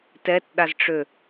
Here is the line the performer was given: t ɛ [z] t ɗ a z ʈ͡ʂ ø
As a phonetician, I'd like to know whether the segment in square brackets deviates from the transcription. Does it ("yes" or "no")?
yes